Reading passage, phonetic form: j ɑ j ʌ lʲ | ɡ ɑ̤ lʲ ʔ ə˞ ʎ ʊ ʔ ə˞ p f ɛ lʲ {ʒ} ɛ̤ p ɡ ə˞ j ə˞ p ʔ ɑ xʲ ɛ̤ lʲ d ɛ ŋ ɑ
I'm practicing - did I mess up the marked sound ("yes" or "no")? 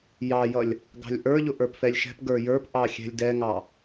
yes